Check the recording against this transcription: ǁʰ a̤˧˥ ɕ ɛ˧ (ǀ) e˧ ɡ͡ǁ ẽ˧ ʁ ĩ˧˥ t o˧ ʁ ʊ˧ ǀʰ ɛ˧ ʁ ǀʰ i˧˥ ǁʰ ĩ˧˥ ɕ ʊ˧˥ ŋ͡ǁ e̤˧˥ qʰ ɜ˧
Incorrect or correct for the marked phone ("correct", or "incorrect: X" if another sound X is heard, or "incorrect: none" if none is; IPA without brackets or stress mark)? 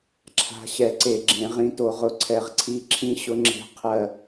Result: correct